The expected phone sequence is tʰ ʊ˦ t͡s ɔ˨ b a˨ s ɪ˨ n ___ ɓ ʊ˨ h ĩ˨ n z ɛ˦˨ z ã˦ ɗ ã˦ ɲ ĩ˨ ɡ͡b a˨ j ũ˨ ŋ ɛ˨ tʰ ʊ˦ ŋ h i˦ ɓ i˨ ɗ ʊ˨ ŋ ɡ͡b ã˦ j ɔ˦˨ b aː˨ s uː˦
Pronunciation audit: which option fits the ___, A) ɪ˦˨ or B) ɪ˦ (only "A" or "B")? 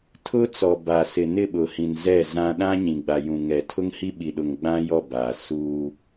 A